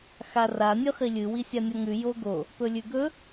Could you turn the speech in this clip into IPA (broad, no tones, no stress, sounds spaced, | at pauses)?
x a r a nʲ ʉ χ i lʲ ɨ w i sʲ a nʲ o ŋ ʉ j o ɡ o | p ɵ lʲ ʉ ɡ ɵ